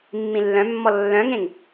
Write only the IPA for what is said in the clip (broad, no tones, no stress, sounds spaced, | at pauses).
mː ĩ lː œ̃ mː ɔ lː œ̃ ŋ ẽ ŋ